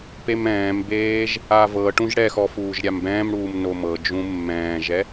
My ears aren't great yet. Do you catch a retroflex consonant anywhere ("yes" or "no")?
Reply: yes